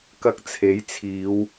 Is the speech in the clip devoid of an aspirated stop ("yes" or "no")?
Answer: no